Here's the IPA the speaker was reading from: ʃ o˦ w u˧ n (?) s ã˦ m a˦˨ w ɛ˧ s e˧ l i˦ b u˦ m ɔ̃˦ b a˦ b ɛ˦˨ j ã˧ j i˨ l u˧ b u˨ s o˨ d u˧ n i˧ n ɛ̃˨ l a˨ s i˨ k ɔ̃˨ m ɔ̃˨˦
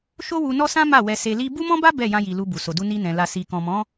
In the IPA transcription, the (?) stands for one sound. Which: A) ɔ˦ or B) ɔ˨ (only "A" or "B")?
A